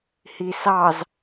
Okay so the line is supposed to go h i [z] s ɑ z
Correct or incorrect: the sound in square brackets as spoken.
incorrect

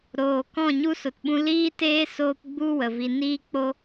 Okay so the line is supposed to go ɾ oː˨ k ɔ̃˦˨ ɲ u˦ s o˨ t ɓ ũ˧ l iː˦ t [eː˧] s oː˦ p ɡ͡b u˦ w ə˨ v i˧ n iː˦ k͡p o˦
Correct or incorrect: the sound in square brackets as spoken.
incorrect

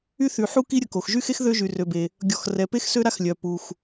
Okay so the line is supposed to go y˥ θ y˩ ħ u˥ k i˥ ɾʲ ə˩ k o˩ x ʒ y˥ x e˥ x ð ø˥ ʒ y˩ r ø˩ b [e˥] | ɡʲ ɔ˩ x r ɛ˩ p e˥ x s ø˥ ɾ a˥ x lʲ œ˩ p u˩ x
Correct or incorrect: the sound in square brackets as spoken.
incorrect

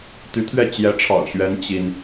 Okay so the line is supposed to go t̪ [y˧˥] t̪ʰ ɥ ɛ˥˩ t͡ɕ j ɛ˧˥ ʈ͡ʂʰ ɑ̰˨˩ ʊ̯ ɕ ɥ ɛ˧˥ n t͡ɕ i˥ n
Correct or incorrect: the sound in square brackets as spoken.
correct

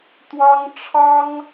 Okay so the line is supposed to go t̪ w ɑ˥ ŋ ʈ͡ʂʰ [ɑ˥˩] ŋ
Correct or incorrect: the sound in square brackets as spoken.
incorrect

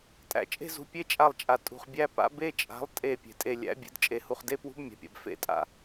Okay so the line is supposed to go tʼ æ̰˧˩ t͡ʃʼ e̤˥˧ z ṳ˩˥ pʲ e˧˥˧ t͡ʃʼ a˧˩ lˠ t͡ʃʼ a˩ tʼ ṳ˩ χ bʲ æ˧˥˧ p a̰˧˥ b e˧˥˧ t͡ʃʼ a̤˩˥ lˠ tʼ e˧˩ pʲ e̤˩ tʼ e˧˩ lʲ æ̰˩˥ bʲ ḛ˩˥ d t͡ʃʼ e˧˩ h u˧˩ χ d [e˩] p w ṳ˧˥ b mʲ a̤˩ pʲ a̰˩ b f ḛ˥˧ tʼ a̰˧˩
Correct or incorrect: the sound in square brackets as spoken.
incorrect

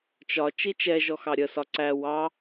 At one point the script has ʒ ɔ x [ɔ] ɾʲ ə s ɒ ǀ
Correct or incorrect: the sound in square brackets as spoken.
incorrect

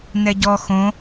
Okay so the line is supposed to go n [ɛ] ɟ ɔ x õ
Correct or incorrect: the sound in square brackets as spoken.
correct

